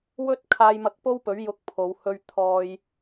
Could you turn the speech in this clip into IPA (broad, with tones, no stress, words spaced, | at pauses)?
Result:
wɵ˥t̚ kʰaː˧jmɐ˧k̚po˥wpɵ˨˥ɥ jʊ˧k̚pʰo˨˧w hɵ˧ɥ t̪ʰɔː˧j